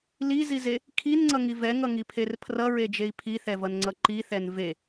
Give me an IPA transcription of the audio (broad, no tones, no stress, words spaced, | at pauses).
lizize | kʰinŋ͡ǀʌŋi vɛŋʌŋipʰer pʰrʌɹed͡ʒei̯ pʰiθɛvʌnŋ͡ǀʌ ǃiθɛn ve